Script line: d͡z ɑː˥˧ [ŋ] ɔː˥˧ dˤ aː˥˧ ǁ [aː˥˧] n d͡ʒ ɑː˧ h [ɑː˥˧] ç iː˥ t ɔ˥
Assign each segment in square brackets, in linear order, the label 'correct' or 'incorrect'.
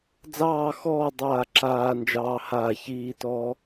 incorrect: x, incorrect: aː˧, incorrect: aː˥˧

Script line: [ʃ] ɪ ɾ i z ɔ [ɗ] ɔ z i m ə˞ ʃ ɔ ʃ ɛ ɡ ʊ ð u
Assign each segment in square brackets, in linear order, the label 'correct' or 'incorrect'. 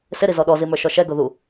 incorrect: s, correct

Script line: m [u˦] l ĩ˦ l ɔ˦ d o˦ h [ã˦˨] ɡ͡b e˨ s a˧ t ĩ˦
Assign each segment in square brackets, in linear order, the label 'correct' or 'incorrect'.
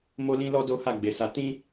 incorrect: o˦, incorrect: a˦˨

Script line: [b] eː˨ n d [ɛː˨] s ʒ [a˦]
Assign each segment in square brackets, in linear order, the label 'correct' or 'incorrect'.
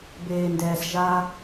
correct, correct, correct

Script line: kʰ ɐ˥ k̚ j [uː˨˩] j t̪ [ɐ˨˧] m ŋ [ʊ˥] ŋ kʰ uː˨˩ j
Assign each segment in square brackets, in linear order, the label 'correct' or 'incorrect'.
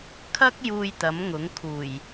incorrect: uː˧, incorrect: ɐ˨˥, incorrect: ʊ˨˥

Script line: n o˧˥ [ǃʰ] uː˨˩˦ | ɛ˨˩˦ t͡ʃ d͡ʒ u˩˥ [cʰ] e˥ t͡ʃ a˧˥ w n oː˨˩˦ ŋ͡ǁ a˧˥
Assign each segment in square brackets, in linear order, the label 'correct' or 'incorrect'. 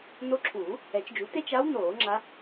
incorrect: ǁʰ, incorrect: t

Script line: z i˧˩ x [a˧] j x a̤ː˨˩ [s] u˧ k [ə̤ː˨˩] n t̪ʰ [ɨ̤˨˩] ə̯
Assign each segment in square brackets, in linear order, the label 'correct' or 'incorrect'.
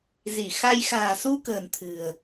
correct, correct, correct, correct

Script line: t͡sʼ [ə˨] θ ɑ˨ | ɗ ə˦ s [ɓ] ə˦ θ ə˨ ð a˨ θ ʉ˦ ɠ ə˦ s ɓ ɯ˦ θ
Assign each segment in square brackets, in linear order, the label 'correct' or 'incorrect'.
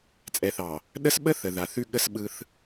incorrect: ɛ˨, correct

